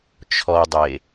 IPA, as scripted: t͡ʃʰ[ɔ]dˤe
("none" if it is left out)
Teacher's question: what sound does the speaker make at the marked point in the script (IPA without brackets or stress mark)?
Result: ɔ